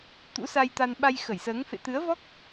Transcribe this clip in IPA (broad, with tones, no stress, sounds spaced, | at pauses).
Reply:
t̪ ṵ˧˥ s a˧ j t̪ a˧ n ɓ a˧ j x ə˧˩ j s əː˨˦ ŋ f ḛ˧˨ t̪ ɨ˨˦ ə̯ v ɔ˦˥ k̚